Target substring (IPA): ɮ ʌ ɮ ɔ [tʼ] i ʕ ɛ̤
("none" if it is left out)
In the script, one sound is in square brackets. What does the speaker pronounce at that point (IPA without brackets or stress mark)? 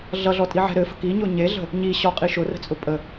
tʼ